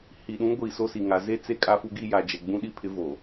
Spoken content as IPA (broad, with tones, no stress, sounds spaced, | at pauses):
h i˨ ɗ ũ˦ ɡʷ i˦˨ s o˦ s i˨ ŋ a˨ z e˦ t͡s e˦˨ kʼ a˦ f u˦ ɡ i˦ j a˨ d͡ʒ ɛ˨ ɡ͡b ũ˦ ɗ i˦ pʰ ɪ˦ v o˨